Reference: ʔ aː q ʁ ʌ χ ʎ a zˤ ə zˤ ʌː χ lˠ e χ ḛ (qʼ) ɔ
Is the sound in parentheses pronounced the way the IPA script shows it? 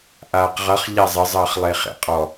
yes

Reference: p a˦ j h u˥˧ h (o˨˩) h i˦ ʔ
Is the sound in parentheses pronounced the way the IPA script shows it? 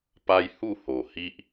yes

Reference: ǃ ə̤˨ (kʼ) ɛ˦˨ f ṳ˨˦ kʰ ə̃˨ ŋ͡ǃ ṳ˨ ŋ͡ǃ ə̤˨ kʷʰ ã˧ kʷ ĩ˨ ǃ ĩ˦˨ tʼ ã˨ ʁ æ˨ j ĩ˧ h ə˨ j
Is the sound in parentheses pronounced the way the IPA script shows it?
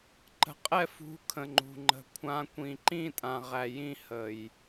no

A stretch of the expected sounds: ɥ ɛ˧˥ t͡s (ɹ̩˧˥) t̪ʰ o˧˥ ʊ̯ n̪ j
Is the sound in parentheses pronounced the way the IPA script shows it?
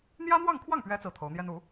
no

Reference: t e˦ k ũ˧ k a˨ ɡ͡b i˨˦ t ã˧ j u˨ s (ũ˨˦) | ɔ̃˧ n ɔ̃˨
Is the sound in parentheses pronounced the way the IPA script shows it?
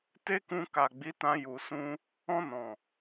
no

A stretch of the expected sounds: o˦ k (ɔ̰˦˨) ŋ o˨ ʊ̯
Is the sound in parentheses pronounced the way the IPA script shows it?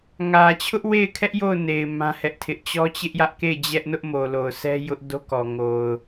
no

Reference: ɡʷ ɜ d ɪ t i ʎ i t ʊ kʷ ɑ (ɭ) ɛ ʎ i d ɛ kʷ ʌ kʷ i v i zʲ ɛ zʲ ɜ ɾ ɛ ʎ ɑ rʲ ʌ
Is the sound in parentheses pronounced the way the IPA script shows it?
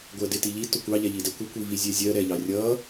no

